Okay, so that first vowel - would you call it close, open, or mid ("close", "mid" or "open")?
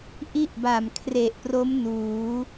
close